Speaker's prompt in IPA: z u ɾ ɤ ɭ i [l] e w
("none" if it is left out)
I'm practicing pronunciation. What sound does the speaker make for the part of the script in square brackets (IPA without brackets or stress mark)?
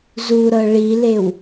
l